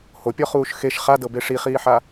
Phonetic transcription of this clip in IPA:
hopʲɔχuːʃ xeʃ χadɤbe ʂiχiːħa

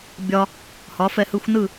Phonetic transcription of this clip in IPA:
bʲɒ˥ | hɒ˩˥fɛ˧hɯ˧xʷnɯ˥˩

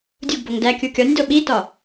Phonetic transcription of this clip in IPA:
dʲuɡ boŋdæ kʲukʲɒnʲ doɓitɒ

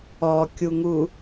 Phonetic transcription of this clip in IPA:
ɔkʲuŋu

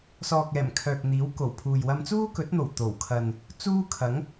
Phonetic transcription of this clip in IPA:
sɔː˨k̚ɛː˨˩m kʰœː˨k̚n̪iː˨˥w ko˨˩wpʰuː˨j wɐ˧mt͡suː˥kɵ˨˥t̚n̪o˨˩w t̪o˨˩w kʰɐ˨n | t͡suː˥kʰɐ˨˥ŋ

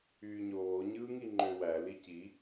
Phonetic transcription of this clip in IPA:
yːɲoː ɲɯːŋiŋ͡ǃø wæ lici

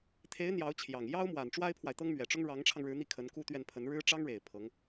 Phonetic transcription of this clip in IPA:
t̪ʰe˧˥ɪ̯ n̪jɑ˧˥ʊ̯t͡ɕʰjɑ˨˩ŋ jɑ˥ʊ̯mwa˨˩n ʈ͡ʂwa˥ɪ̯pʰwa˨ɪ̯t̪ɤ˥ŋ mɥɛ˨˩ʈ͡ʂʊ˥ŋ ɻɑ˧˥ŋʈ͡ʂʰɑ˧ŋɻɻ̩˧˥ n̪i˥˩kʰə˧˥nku˥t̪ɥɛ˥˩n pʰə˧˥nɻɻ̩˥ ʈ͡ʂɑ˥ŋɻe˨˩ɪ̯ pʰɤ˧˥ŋ

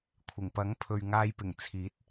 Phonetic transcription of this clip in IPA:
kʷʰɪ˨˩ŋpɐ˨˥ŋpʰɵ˨ɥ ŋaː˧jpɪ˨˩ŋ t͡sʰiː˨˥t̚

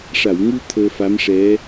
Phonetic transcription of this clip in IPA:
ʂa˨˩˨wŋu˧ t̪ʰəː˧fa˧˥mʂɛ˧˥

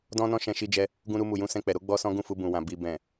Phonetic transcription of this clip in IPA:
dɔ̃˧ nɔ̃˦ʃɛ̃˧ʃi˧d͡ʒɛ˧ | ɡũ˧ɾu˧mu˨ jũ˧sɛ̃˧k͡pɛ˨ɾo˨˦ ɡ͡bɔ˦sɔ̃˦ ɡũ˦˨fu˧ bũ˨wã˨ bi˨bɛ̃˨

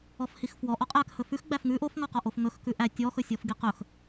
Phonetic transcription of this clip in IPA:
ɔfhixfwɔ ʔɔqʼæk hɵfʉx ɡ͡bæfŋʉ ʔofŋɔqɔ ʔofŋɵx kʉʔæ tʲɔxɵsʲɔf ɡiqɵx

